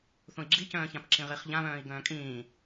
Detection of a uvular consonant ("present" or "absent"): present